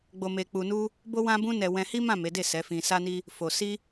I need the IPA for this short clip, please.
ɡ͡b o˧ m e˧ k͡p u˧ n u˦ | b o˦ w ã˦ b ũ˦ n ɛ˧ w ɛ̃˧ h i˦ m ã˦˨ m e˨˦ d e˦˨ s ɛ˨˦ f ĩ˧ s a˦ n i˦ | f o˧ s i˦

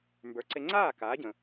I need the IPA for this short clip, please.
m b ə˞˩˥ ǀ e˧ ŋ͡ǀ aː˥˩ k aː˩˥ ɟ ə̃˩

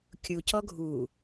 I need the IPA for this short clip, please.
kʲ u c ɔ ɡʱ u

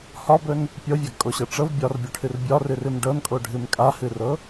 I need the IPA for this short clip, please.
h ɒ b ɵ n | pʲ ɤ vʲ a ɡ kʼ o ɕ ɤ ʈ͡ʂ ɤ v bʲ ɒ r bʲ o ʈʰ ɨ r bʲ ɒ r ɨ r ɨ m ɖ ɤ n kʼ o ɖʱ ɨ m kʼ a h ɨ r ɤ

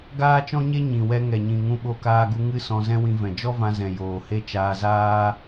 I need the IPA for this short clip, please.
ɡ aː˦ t͡ʃ ɔ̃˦ ɲ e˦ ɲ ĩ˨ w ɛ˧ ŋ ɛ˨ ɲ ĩ˨ ŋ ũ˧ ɓ o˧ k aː˧ ɡ u˧ ŋ ɨ˦ s ɔ̃˧ z ɛ̃˦ w ĩ˧ v ɛ̃˨ d͡ʒ ɔ˦ v ã˧ z ɛ̃˨ j oː˨ h e˦ t͡ʃ aː˧ z aː˦

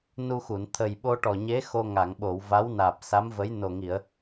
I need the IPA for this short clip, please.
n u˧ x u˨˩˨ n t̪ʰ ə˨˩ j ɓ o˧ ʈ ɔ˨˩ ɲ e˧˥ x o˧ ŋ a˨˩˨ ŋ ɓ o˨˩˨ w v a˧˥ w n aː˨˩ p̚ s a˧˥ m v ə˧˥ j n o˨˩ ŋ i˨˩˨ ə̯

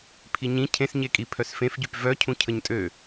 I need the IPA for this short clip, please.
pʰ i ɲ ĩ cʰ ẽ s ɲ e kʼ i pʰ œ s f ẽ f ɟ y p v œ cʰ ũ cʰ ə ɲ tʼ ø

